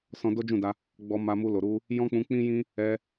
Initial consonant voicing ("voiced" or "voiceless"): voiceless